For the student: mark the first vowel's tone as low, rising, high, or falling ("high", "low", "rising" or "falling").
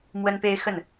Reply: high